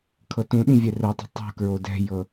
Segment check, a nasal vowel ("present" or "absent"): present